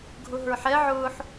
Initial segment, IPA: ɡʱ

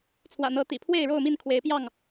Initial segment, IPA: t͡sʰ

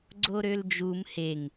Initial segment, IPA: ɡ͡ǀ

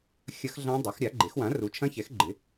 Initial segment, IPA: xʲ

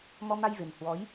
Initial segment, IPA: m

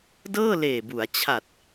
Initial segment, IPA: d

